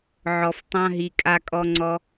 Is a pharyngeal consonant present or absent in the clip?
present